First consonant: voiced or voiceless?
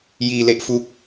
voiced